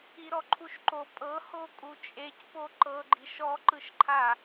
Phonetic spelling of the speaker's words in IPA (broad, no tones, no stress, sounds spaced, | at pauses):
i ɾ ɔ ǃʰ u ʃ ǃ o pʼ ɤ h o kʼ u t͡ʃʼ e c p o ǃ ɤ ɡ͡ǃ i ʃ ɔ ǃ ɯ ʃ ǃʰ a